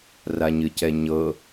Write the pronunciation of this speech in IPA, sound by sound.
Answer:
raɲɨcɛɲɤ

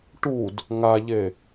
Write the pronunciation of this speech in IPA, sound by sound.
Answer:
ʈud | ŋaʎe

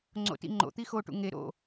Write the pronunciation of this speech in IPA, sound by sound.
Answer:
ŋ͡ǀo̰tḭŋ͡ǃo̰t̪i xoʈṵ ŋe ɾo̰

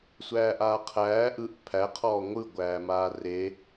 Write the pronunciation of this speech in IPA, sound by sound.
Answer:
sʷæːʔaːqʰæː ʔɯʔ pʰæqʰɔː ŋʷɯɡʷæːmaː re

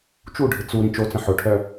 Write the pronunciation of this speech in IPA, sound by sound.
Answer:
t͡ʃuɖʱɪ t͡su ɾĩt͡ʃot͡sə̃ ħʊʈʰœ

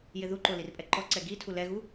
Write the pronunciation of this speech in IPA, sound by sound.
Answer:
jɪðuǃo lirpʼɛǃɔǀɛ ɡitʰu lɛɣu

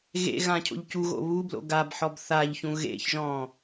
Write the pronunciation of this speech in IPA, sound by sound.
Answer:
ɣḛ ɣãcʰo̰ʎcuɣo̰ βublo̰ ɡabħɔb θaʎçũ ɣḛçʒɔ̃

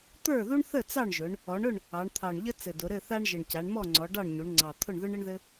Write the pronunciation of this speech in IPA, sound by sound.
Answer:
t̪ə˞˥˨ðu˥ɳθə˥˨ t͡sɑ˥˨ɳʒʊ˩˧ɳ | ɔ˩˧ɳʊ˥˨ɳ | ɑ˩˧ɳt̪ʰɑ˨˩ɳʎə˥ t͡sɘ˨˩dʊ˩˧ ɾɘ˥˨θa˥ɳʒə˨˩ɳ ca˩˧ɳmɔ˥˨ŋ͡ǀɔ˩˧ɖɑ˥˨ɳ ɲu˩˧ɳŋ͡ǀɑ˨˩t̪ʰʊ˥˨ɳ ðʊ˥ɳɘ˥ɳðɘ˥

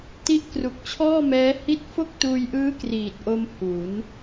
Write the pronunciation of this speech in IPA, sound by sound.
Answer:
ti˦˥ʔkru˨˩k̚t͡ɕʰɔː˥˩mɛː˦˥ hi˥˩t̚ fo˥˩k̚tuː˧jʔɯː˦˥ kriː˨˩t̚ʔo˧m hu˩˦n

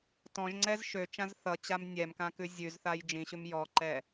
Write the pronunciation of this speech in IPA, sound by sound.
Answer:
tɔ̃ʒŋ͡ǀɛz ʃøt͡ʃãz θʌt͡ɕam nʲɛmkãkʉ zʲʉzθaj d͡ʒĩɕʉm jɔǃɛ

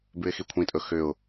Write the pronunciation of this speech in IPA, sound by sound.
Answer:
bʉɪ̯xikʷʰĩtʼɵ xʏʊ̯

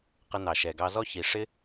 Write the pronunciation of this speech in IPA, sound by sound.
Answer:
qə˦nɑ˩ʃɛ˩ɡɑ˦ zɔ˥çi˩ ʂɪ˥

